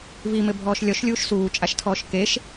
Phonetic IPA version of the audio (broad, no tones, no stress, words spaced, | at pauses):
vimɘbʱɔːʃ lʲɔʃlʲuːʃ suːt͡ʃʼaʃtʰɔːʃ keʃ